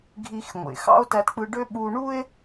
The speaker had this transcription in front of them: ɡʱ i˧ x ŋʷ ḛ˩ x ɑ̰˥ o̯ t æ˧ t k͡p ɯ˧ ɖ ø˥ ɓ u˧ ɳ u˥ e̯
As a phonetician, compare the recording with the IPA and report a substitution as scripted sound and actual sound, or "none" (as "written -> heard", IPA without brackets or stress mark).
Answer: none